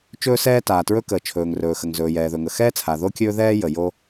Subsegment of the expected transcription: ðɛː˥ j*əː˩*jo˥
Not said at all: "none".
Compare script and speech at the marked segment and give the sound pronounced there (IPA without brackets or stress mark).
ə˩